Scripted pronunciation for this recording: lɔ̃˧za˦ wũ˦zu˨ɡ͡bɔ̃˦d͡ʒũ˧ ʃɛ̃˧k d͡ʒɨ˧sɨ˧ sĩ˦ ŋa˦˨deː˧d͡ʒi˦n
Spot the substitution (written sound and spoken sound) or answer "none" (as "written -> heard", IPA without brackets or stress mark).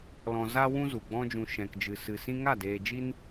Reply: none